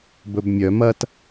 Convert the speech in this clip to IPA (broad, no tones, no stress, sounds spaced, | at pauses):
b ɵ b mʲ œ m ɐ t